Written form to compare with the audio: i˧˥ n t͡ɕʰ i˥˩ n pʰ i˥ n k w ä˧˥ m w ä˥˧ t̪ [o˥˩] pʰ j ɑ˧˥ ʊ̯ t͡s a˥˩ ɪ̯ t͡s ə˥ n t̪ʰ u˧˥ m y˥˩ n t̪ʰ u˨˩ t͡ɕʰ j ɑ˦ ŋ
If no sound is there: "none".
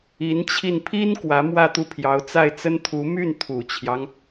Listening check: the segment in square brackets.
u˥˩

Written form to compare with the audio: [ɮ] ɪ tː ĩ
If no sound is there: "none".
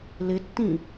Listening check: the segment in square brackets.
l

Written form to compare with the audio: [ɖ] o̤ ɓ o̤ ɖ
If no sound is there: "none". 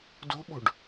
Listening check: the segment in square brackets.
d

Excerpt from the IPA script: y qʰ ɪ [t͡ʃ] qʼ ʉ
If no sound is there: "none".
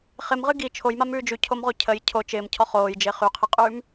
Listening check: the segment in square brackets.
none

